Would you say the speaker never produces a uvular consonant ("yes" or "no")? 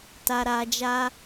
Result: yes